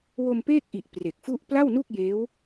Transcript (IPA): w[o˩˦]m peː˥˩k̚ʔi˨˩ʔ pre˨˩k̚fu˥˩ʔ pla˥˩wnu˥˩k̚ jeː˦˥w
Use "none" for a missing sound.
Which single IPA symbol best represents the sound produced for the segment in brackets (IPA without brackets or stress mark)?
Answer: o˧